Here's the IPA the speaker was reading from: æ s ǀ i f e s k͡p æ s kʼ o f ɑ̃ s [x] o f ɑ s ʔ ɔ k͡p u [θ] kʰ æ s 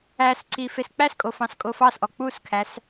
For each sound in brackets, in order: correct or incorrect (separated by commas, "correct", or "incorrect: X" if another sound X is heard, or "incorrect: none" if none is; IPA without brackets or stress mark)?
incorrect: kʼ, incorrect: s